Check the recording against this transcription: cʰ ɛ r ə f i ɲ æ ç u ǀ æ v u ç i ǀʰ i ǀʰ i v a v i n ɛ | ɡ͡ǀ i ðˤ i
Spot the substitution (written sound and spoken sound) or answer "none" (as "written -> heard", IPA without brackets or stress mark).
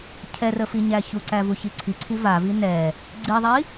none